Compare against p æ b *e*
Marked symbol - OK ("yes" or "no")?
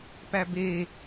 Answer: yes